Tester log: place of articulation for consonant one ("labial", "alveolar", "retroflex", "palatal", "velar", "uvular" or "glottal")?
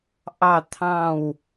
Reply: glottal